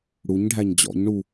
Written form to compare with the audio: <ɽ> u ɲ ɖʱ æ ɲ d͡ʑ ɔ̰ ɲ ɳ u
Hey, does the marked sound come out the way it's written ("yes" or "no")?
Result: yes